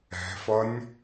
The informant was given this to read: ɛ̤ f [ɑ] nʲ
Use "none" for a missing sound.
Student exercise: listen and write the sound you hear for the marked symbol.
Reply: ʌ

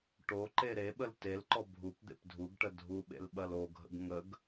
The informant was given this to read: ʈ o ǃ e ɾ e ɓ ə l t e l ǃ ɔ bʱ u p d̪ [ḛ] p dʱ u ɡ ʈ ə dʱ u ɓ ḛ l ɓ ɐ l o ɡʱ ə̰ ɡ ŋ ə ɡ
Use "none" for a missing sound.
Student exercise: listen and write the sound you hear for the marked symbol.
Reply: ḛ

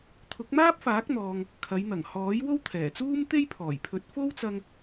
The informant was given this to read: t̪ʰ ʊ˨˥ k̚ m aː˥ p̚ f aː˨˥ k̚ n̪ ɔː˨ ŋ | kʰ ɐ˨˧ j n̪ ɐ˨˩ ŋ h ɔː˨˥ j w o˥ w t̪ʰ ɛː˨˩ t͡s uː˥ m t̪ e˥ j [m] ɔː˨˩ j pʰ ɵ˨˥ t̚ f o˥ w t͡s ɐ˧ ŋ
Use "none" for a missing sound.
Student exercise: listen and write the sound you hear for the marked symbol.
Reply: pʰ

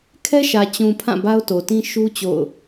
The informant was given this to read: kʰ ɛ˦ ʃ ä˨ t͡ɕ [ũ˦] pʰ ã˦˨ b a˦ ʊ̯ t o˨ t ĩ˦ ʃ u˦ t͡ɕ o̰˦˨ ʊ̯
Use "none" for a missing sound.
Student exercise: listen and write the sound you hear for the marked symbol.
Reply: ũ˨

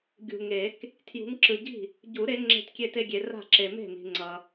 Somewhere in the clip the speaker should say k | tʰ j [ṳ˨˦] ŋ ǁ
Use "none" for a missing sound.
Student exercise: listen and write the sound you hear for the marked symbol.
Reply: ṳ˨˦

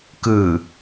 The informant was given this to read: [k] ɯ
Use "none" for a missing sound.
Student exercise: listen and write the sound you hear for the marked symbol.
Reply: k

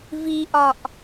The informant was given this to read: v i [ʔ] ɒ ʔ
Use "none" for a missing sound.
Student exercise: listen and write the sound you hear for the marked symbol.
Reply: ʔ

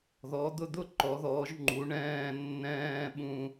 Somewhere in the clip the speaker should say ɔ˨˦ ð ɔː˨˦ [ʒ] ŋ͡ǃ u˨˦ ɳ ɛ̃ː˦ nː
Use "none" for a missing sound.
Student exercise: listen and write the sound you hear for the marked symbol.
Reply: ʒ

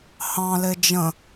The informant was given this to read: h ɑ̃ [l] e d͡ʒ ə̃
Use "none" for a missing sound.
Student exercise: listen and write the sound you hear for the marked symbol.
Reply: l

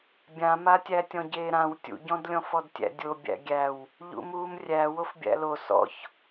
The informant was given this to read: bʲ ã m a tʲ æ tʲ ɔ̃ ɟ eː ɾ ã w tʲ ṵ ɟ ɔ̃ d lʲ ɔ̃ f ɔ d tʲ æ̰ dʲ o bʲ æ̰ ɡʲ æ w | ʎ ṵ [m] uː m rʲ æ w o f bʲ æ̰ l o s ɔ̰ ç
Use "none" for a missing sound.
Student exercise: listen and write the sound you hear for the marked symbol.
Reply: m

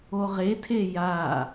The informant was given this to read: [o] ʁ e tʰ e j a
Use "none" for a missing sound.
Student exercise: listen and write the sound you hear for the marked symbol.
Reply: o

